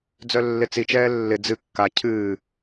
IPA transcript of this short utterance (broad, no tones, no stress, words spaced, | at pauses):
d͡zœlːɪt͡sit͡ʃɛː lːɪ d͡zɨ kːa cʰɨː